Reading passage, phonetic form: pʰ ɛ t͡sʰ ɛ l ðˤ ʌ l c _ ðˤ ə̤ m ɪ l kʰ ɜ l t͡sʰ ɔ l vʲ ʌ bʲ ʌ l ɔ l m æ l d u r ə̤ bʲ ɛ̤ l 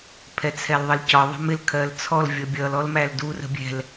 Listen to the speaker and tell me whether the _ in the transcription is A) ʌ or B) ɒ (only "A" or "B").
B